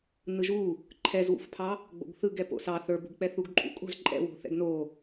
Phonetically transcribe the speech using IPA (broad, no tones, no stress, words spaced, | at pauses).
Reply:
nɯʒu | ǃʰɛzwṵfpʰɑ | ɡ͡bo̰ɡθɯɡ ɛpo̰sɑ θə˞bṳɡk͡pɛ θuɡǃʼṵkʼo̤z ǃʼɛ̰wo̤ θɛ̰ɡno